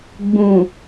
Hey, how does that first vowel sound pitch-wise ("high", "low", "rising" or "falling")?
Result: low